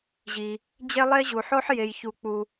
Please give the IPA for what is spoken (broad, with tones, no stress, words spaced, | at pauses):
ʑi˩ | d͡ʑe˥lˠe˥ʑu˩ħo˥ħ je˩jçu˩ k͡pu˩